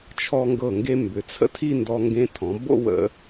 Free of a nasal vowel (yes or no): no